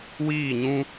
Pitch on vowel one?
falling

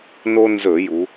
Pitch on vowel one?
high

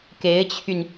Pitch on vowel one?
rising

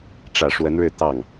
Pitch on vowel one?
low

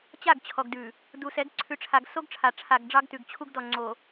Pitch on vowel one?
falling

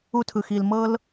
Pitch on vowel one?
high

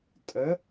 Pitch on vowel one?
rising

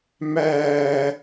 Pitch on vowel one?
high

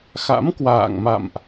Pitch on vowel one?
rising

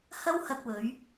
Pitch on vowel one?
high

